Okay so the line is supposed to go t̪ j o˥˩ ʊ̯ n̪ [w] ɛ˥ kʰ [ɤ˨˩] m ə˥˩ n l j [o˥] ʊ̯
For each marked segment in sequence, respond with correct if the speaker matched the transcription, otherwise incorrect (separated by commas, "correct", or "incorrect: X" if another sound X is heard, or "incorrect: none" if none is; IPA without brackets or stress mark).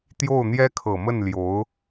incorrect: j, correct, incorrect: o˧˥